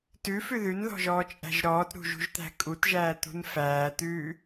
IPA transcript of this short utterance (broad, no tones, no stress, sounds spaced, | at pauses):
t ʉ f ʉ ð ʉ n ð ɔ̤ ʒ ɔː t͡ʃʼ æ̤ ʒ ɾ ɔː t ɾ ṳ ʒ ṳ ʒ t̪ æ̤ kʼ u t ʒ æː t̪ ṳ n f æː t̪ ʉː